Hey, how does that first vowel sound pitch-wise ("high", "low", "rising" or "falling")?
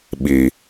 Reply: low